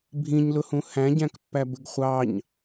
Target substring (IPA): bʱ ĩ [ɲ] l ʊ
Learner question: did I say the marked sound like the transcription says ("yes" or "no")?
yes